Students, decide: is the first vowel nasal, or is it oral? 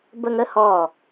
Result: oral